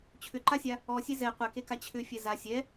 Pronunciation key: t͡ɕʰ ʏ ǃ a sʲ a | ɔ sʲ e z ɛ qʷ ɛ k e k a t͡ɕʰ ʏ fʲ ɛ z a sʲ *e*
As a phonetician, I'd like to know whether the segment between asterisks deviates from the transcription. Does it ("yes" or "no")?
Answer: yes